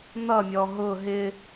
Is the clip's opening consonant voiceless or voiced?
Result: voiced